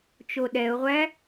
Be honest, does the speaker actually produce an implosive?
yes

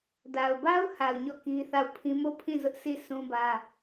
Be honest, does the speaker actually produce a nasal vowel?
yes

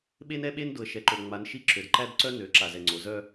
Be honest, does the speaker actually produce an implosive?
yes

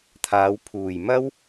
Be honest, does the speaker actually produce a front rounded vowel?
no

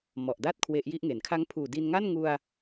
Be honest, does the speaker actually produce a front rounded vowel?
no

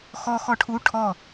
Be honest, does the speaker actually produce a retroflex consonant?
yes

